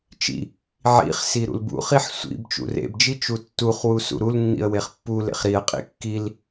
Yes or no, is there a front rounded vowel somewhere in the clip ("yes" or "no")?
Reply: no